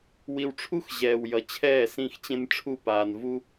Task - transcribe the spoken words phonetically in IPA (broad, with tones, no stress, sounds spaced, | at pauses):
w i˨ w ʈ͡ʂʰ u˦ x ʑ ɛː˨ w j ʌ˨ t͡ɕʰ ɛː˦˨ s ĩ˦˨ x t͡ɕ ẽ˦ n ʈ͡ʂʰ u˦˨ p aː˨ n v u˦